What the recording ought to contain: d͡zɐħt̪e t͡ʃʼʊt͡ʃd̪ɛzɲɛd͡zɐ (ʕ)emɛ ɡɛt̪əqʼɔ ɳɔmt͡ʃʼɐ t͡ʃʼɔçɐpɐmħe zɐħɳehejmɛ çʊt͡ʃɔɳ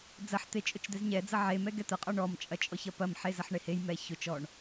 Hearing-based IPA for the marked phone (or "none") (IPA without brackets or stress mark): ʕ